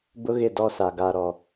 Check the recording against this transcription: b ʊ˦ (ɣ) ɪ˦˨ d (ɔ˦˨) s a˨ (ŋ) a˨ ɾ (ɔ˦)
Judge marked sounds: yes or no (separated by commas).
yes, yes, no, no